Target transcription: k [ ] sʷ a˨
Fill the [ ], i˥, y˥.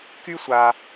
y˥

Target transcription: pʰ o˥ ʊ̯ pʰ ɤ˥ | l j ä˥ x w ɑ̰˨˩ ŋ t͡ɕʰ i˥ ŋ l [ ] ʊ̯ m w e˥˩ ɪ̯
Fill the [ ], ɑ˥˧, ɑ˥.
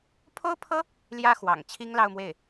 ɑ˥˧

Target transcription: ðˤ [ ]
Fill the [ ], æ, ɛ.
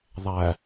æ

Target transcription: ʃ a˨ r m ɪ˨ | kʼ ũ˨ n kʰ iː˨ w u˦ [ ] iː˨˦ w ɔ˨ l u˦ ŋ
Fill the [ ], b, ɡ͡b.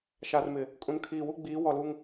ɡ͡b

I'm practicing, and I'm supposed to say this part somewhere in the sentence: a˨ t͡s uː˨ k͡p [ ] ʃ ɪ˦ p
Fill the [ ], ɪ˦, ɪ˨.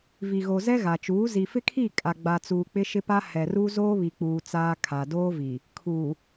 ɪ˦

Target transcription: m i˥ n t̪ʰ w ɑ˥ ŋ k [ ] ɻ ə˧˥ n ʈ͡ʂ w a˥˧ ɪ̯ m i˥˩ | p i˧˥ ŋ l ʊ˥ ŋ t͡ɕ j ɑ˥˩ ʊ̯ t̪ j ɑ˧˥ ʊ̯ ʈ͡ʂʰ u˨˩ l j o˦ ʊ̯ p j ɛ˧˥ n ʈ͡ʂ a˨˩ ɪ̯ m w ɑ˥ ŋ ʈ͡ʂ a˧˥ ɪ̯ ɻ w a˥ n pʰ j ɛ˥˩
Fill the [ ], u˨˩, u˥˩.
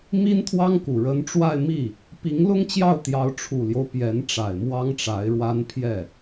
u˨˩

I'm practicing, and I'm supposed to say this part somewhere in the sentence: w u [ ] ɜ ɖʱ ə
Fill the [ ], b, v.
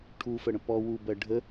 b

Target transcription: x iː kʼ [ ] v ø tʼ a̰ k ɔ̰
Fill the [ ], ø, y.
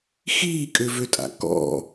ø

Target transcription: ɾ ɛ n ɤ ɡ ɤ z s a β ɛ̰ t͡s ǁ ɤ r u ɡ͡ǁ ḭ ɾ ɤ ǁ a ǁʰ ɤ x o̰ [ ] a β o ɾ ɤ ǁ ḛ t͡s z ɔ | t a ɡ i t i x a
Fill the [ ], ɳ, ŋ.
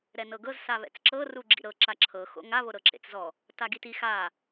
ŋ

